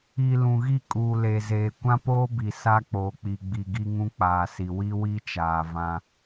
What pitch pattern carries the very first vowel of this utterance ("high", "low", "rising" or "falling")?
low